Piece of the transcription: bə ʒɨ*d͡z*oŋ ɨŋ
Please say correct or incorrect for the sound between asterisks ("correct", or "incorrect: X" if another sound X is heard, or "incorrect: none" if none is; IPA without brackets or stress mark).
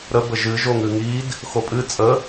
incorrect: ʒ